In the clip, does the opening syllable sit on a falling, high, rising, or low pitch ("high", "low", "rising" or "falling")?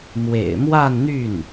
low